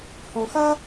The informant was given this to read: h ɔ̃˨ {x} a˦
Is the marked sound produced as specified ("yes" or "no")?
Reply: yes